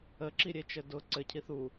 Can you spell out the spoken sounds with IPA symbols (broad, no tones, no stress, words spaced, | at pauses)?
əǁiɾʲet͡ʃɘ dʊ ǀɘcʰi θu